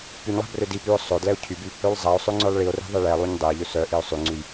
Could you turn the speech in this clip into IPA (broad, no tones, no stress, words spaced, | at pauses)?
pyɲlˠæ̤ brødipyo̯ sˤɵdlɛo̯ cʰyby | ølˠzˤæo̯sˤø ŋ͡ǀœlˠɭio̯ri̤ ðˤeɭɛlˠuɲ dˤɛe̯ ʎɵsœʔio̯ sˤʉŋ͡ǀʉj